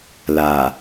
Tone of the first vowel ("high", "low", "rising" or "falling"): low